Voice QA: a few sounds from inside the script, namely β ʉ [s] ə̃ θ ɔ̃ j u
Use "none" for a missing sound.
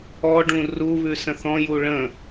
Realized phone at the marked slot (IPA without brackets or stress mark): s